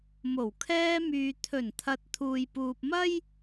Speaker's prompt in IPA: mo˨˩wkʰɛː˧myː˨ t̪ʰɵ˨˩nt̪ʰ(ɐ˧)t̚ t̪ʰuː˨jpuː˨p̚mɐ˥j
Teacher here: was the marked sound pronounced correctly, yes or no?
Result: no